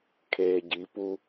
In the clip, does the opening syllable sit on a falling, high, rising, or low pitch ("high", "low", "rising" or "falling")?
low